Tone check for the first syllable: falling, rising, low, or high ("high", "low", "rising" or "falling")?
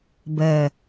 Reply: low